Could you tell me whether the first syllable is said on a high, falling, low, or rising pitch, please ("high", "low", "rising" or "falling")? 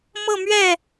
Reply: falling